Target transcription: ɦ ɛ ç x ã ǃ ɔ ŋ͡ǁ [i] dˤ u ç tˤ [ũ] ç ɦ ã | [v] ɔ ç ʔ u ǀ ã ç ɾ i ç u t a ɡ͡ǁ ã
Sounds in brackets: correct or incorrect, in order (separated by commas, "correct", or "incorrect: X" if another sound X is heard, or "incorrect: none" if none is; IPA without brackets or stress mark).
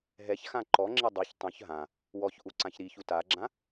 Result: correct, correct, incorrect: w